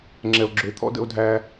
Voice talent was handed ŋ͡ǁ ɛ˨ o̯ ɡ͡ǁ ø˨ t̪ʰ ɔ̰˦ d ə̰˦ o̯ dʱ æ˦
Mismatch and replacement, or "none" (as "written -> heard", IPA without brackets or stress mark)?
none